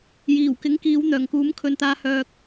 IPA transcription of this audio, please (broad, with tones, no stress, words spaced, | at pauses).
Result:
jiː˨˩wkɪ˨˥ŋkiː˨˧w n̪œː˨˩ŋkuː˨˥mkʰɵ˨nt̪aː˧ hœː˧k̚